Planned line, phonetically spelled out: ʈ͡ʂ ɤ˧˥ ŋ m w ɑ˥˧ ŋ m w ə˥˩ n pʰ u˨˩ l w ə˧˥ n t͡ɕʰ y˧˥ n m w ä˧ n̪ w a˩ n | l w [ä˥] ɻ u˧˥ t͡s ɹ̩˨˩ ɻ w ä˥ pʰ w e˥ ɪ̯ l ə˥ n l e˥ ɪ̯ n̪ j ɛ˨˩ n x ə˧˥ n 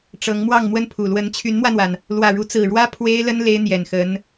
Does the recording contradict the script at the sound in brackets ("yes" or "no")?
yes